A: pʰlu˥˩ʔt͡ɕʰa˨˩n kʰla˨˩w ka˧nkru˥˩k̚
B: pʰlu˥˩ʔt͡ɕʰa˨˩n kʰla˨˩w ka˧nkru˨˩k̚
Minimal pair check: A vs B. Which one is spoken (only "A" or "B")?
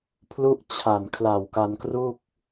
A